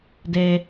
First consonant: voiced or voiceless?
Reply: voiced